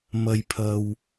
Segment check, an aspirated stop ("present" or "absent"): present